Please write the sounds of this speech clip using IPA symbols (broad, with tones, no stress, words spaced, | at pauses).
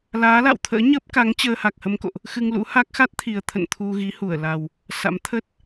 laː˨˦la̰˧˨w t̪ʰə̰ː˧˥ɲəː˦˥p̚ka˨˦ŋ t͡ɕəː˧ha˨˩k̚hə˧mko̰˧˨ʔ | xɨ˧ŋlṵ˧˥ha˦˥k̚ xa˦˥t̚t̪ʰi˨˩ə̯t̪ʰə̰˧˨n t̪ʰu˧ɣi˨˦hu˧˩ə̯la˨˩w | sa̰˧˥mt̪ʰə˦˥t̚